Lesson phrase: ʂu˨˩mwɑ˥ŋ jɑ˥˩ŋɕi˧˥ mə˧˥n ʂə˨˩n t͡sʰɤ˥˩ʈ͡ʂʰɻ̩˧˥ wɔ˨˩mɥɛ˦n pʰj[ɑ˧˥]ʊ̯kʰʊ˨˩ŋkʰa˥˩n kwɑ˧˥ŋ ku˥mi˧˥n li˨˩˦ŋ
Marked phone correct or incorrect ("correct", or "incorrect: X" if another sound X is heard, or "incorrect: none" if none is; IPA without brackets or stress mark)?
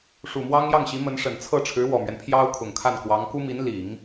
incorrect: ɑ˥